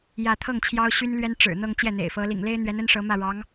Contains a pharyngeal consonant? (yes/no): no